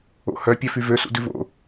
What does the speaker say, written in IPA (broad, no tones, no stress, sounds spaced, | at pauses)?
o̰ h œ pʲ œ f y v ø s ṵ d ʉ v o̰